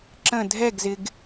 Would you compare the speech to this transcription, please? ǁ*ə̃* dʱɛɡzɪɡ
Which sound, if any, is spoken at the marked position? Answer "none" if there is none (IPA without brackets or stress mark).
ə̃